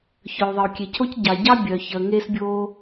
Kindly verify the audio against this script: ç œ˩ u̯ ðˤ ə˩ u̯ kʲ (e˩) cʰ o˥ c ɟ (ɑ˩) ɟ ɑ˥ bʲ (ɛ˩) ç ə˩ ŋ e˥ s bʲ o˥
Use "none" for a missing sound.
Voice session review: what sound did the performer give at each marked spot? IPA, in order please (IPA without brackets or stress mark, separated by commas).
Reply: e˩, ɑ˩, œ˩